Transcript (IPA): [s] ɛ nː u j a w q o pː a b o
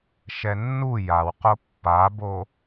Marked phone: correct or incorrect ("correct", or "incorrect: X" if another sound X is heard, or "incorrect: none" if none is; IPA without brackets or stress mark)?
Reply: incorrect: ʃ